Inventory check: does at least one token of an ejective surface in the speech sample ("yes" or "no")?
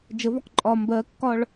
yes